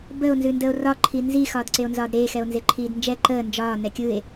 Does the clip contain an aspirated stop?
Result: yes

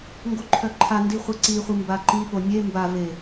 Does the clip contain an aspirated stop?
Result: yes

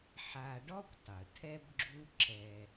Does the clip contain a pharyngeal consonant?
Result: yes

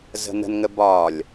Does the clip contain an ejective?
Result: no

